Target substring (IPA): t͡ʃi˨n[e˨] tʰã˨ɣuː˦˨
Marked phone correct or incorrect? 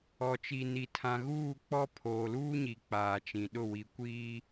incorrect